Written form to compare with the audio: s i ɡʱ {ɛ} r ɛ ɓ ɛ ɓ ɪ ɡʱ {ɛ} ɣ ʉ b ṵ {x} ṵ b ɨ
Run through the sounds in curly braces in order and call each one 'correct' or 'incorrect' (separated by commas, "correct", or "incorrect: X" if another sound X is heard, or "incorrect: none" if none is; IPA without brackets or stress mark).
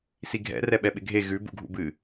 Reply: incorrect: ɛ̰, incorrect: e, incorrect: ɡʱ